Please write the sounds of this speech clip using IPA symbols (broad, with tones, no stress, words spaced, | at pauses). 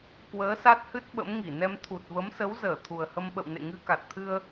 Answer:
kwəː˨˦ sa˦˥t̚hɨ˦˥t̚ ɓə̰˧˥m ŋi˧˩nɛ˧mt̪ʰu˨˩t̚və˨˦m sə˨˦wzəː˧˩ t̪ʰu˨˩ə̯hə˧mɓə̰˧˨w nḛ˧˨ŋɨ˧ ka˨˩t̚t̪ʰɨ˧ə̯